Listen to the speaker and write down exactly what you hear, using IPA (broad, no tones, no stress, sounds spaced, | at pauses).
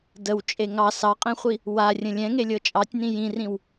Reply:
d ə w t͡ʃʼ e ŋ ɑ s ɑ qʼ ẽ χʷ i | w a rʲ ə̃ lʲ ɛ̃ ŋ e lʲ ɤ t͡ʃʼ ɑ tʲ n ĩ j ĩ r ĩ w